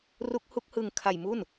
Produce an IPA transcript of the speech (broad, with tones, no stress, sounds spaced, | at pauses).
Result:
r u˦˥ k̚ h u˦˥ k̚ h ɯ˧ ŋ kʰ a˧ j m u˥˩ n